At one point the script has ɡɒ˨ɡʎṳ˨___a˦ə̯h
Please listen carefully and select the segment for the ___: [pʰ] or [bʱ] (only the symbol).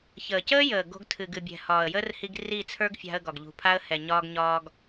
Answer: pʰ